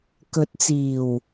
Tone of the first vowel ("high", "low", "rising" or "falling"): rising